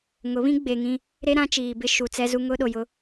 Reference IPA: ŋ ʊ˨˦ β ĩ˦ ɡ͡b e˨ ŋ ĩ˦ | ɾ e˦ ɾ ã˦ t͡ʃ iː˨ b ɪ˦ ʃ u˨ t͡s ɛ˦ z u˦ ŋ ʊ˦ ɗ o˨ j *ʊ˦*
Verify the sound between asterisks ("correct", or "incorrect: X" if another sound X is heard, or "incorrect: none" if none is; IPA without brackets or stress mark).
correct